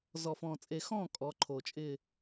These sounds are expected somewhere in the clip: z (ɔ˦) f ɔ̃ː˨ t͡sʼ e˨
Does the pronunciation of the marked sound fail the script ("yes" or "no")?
yes